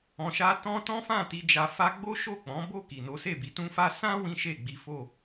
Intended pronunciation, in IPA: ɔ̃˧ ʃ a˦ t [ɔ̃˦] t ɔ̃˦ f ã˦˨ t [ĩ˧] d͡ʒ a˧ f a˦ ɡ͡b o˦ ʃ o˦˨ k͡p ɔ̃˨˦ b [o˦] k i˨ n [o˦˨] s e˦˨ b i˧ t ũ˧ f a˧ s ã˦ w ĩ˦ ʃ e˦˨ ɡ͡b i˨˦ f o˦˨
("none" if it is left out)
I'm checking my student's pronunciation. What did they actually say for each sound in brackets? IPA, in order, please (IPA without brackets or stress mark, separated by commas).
ɔ̃˦, i˧, o˦˨, o˨˦